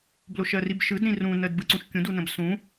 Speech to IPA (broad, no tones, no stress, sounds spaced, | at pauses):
b l o ʃ ɜ r i b ʃ ɯ d ɾ ĩ r ũ n ɜ d b ɯ ǀ ũ ʃ kʲ ũ d u n ə̃ b s ũ